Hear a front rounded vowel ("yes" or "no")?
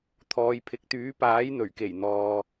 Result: yes